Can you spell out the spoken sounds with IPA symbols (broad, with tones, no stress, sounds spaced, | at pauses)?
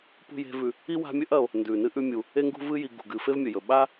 p ṳ˥ j e̤˦ v ʉ˨ | i˥ w a̤˦ mʲ ɵ˥ ʔ ɐ˨ o̯ | n d ʉ˩ n ɨ˥ ʔ ʉ˦ mʲ u˩ | e˥ ŋ ɡ ṳ˥ v ɨ˥ j i˨ ɡ ṳ˩ ɡ ɨ˨ f e˥ v mʲ ɵ˩ j ɵ˩ ɓ a˥